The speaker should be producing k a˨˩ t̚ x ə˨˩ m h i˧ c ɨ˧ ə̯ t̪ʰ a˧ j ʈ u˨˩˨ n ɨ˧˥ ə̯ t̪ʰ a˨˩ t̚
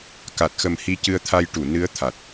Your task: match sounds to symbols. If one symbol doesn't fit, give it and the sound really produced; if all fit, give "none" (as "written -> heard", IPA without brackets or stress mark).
none